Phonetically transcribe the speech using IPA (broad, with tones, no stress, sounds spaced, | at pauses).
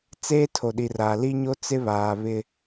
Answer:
t͡s eː˦ tʰ o˨ ɗ i˨ r aː˨ l i˦ ɲ o˦ t͡s ɪ˦ β aː˨ β ɪ˦